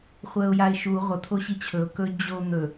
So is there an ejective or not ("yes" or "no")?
no